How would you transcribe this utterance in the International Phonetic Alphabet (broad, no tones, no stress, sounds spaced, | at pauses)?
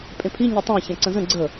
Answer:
pʼ ẽ pʰ i ɲ œ tˤ æ̃ ç æ̃ ǀ ə̃ z ə̃ ɡ͡ǀ ə